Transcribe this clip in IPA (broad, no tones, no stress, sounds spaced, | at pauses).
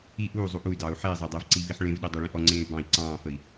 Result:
i ʔ uː zˤ u ʔ u y̯ d ɑː u̯ ħ e i̯ zˤ ɑ dˤ ɜ v ǀ i v i ħ ɭ ẽ v ɗ e dˤ ɑ ɭ ĩ ʔ ɔ ŋ͡ǀ ẽː y̯ b ɑ̃ i̯ ǀ ɑ̃ː f ə i̯